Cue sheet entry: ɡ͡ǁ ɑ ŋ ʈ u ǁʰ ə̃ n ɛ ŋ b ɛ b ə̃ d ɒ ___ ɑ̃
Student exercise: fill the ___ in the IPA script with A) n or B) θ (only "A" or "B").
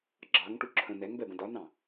A